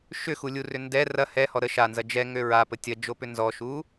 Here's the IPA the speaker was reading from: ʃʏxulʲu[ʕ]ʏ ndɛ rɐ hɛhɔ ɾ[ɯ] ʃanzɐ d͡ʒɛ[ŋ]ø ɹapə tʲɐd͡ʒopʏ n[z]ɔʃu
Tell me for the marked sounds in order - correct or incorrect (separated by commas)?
incorrect, incorrect, correct, correct